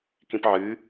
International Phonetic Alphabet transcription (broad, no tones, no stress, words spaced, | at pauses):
kĩpʕɨ